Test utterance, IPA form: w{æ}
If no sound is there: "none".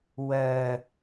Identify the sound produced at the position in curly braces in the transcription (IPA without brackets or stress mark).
ɜ